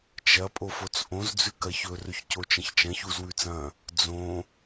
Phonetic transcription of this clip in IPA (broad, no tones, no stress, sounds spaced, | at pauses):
t͡ʃ ɐ pʼ o f o t͡s ʔ õ z d͡z ʉ k ɐ ç ɵ r ɵ ç c o t͡ʃ ɐ̃ ç t͡ʃ ɐ̃ ç u z w ʉ t͡s ɐ̃ | d͡z õ